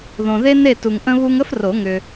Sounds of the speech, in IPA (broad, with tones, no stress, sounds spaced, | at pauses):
ð õ˨ ð e˥ n e˥˨ t u˨ ŋ ʔ ə̃˥ β u˥ ŋ ə˥ f r o˨˩˦ ŋ ʏ˨